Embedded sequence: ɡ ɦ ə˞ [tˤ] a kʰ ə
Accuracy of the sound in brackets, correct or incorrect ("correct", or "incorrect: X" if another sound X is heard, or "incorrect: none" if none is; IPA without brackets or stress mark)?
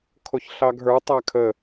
correct